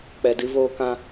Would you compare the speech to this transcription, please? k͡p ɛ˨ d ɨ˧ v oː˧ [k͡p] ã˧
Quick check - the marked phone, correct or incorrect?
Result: incorrect